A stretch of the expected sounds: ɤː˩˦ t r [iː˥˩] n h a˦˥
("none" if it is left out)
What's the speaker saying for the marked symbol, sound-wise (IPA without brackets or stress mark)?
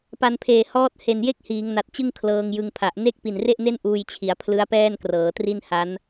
i˥˩